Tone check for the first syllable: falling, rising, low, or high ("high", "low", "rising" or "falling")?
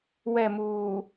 falling